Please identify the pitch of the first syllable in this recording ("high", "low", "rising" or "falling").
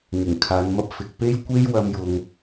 low